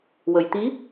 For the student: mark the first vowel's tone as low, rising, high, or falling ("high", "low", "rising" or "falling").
low